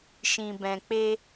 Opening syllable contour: low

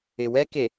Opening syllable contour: low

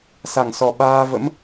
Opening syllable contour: low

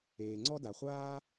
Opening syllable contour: low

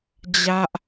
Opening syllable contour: high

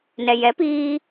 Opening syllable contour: low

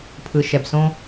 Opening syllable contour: low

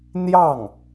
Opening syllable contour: falling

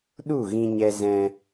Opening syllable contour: falling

